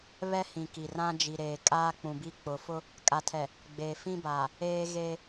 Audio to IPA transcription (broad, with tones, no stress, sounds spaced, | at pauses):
β ɛ˦ h ĩ˨ k i˨ r ã˦ d͡ʒ i˨ ɾ eː˨ kʼ aː˦ k͡p ũ˨ b i˦ k͡p ʊ˨ f ʊ˦ | kʼ a˨ tʰ ɛ˨ | ɡ͡b eː˨ f ĩ˦ b aː˨ | eː˦ ɣ eː˦